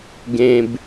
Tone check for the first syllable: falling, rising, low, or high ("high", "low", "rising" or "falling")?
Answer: low